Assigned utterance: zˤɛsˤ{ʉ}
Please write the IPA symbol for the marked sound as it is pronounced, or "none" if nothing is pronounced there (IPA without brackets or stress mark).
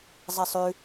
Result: ʉ